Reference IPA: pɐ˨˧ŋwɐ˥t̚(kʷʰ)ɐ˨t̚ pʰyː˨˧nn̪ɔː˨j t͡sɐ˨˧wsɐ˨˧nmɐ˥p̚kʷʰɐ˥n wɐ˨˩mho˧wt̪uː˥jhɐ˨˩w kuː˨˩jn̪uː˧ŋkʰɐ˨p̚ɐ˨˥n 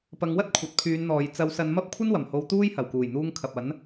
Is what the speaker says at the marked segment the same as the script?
yes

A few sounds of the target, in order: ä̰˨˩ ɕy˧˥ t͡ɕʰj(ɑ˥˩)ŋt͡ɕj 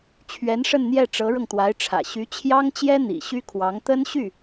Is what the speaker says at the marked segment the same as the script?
no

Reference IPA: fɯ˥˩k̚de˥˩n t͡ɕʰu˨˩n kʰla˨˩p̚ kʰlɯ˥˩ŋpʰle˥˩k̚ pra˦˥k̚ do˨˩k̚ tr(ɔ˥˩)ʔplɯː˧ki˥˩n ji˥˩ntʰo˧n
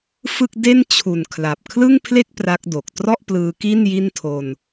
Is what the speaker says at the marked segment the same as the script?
yes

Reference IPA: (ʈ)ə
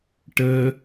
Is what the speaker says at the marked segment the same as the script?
yes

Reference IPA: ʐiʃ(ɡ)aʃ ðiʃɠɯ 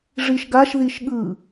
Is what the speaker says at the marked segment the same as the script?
yes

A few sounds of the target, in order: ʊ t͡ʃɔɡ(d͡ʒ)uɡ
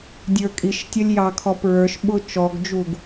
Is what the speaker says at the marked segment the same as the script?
yes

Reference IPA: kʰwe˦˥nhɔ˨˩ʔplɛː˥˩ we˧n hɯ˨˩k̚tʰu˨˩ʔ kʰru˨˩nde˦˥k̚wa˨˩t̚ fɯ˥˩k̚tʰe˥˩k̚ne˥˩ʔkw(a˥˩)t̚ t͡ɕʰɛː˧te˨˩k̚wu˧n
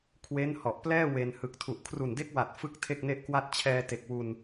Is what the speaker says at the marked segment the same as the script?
yes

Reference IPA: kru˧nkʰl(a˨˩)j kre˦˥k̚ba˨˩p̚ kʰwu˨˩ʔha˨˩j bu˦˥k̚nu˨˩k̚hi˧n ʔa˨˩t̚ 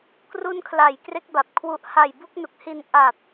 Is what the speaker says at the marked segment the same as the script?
yes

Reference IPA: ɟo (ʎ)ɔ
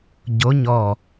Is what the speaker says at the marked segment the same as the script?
no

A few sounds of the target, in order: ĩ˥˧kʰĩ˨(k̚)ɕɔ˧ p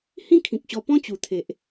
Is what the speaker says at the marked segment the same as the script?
yes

